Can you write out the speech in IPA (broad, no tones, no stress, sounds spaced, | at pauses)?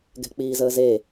ɡ ɛ̤ k͡p iː z əː z e